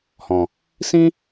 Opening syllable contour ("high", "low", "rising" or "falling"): low